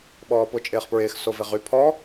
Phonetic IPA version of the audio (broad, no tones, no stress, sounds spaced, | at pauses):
ɓ ɔː p ʊ t͡ʃʼ ɪː χ p ɹ ɪː x s o v ɪ ʁ y pʰ ɔ